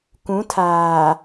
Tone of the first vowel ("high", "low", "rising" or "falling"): rising